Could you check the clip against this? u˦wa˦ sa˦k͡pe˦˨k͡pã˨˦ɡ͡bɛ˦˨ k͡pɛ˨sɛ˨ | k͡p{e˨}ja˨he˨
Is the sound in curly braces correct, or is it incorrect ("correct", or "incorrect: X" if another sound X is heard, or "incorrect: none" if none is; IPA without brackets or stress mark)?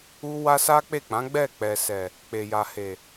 correct